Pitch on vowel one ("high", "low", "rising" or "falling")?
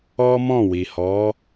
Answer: high